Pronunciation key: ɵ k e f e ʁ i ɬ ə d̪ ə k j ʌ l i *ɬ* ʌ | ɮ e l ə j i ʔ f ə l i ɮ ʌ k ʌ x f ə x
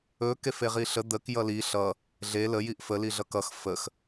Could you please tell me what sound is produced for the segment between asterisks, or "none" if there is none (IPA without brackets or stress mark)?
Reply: ɬ